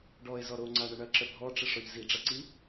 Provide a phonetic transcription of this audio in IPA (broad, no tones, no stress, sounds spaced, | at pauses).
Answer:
ɖ ɔ ɪ̯ z ɔ ɾ o ŋ͡ǀ a ɳ ə ɳ ɐ ǁ ə bʱ ɔ ʈ͡ʂ ə ʂ ɔ ʎ z i ɖ͡ʐ ɐ ǀ i